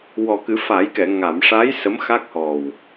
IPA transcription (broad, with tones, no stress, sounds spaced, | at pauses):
w ɔ˨˩ k ɨ˨˩˦ f a˨˩˦ j k ɛ˨˩˨ ŋ a˨˩˨ m ʂ a˧˥ j s ə˧˥ m x a˦˥ k̚ h ɔ˨˩ w